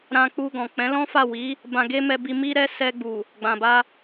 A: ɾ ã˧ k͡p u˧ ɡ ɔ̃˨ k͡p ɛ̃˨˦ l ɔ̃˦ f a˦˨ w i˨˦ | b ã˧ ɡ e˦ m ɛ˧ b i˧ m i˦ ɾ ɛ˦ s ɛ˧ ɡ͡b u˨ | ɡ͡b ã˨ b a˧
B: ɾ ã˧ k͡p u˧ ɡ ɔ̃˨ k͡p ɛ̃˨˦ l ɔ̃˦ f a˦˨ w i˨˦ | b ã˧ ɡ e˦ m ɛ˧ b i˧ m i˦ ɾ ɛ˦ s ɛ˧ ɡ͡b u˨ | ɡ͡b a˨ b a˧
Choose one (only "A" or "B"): A